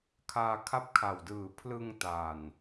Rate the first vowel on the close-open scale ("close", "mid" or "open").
open